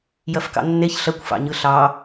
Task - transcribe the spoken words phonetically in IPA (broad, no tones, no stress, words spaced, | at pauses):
jɐfkɑ̰nːeç ɬɐkʷfɑ̰ɲɯ ɬɑ